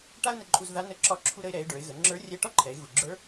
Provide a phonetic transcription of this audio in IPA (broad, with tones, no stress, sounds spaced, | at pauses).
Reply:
ʈ a˥ ʊ̯ n ə˧ ǃʼ u˧ z ð a˧˥ n ə˧˥ ǁ ɒ˧˥ ǁʰ u˧ ɾ ə˧ ɪ̯ ɾ ɛ˩˧ ɪ̯ ɖ ə˞˩˧ ɪ̯ ɣ ə˩˧ ŋ͡ǁ ə˞˧˥ rʲ ɛ˧ ʈ ɒ˥ ǃʰ ɛ˩˧ ɪ̯ ɣ u˩ ɡ͡ǁ ə˞˧˥